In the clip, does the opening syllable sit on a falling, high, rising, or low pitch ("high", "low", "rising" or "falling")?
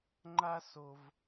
high